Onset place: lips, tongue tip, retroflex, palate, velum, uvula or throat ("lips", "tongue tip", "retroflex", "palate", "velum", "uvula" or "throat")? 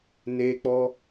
tongue tip